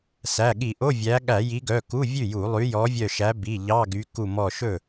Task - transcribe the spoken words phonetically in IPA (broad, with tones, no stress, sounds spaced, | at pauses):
s æ˩˧˩ ɠ i˧˩˧ ʔ o˧˥˧ vʲ æ˨˦ ɠ æ˧˩˧ j i˨˦ ɡ œ˩˧˩ k u˧˥˧ vʲ ʉ˥˩ j u˧˩˧ lˠ ʉ˨˦ j ɔ˨˦ vʲ œ˧˩ ʃ æ˨˦ b i˩˧˩ ʎ ɑ˧˥˧ ɡ y˨˦ k u˧˩ m ɔ˧˩ ʃ ɵ˥˩